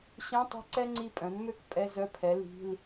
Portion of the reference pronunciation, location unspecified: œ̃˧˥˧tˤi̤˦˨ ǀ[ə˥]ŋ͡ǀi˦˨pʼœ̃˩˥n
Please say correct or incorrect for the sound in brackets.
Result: incorrect